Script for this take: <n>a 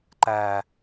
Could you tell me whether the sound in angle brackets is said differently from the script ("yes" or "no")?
yes